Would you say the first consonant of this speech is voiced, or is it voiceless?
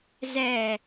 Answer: voiced